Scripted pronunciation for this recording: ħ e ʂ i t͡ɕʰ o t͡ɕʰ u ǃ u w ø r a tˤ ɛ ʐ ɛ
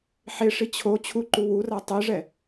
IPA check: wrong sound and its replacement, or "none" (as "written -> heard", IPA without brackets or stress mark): ø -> u